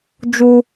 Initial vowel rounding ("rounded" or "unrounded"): rounded